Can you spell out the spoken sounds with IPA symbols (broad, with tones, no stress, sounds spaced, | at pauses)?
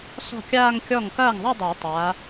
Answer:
s ɔ̤˥˩ kʲ aː˥˧ ŋ kʲ ɔ˥˩ ŋ k ɐː˥˩ ŋ ðˤ ɐ˥˧ dˤ əː˨˩˦ tˤ a˨˦